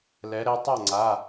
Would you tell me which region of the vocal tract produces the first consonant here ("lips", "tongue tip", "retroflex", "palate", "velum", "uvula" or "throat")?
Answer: tongue tip